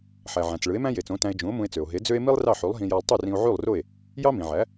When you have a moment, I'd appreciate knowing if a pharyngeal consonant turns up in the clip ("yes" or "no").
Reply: yes